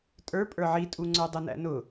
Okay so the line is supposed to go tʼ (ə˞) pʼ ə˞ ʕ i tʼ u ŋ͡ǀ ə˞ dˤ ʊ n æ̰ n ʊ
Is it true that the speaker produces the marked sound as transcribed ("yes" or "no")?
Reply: yes